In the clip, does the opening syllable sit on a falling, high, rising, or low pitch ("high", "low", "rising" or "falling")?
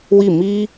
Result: falling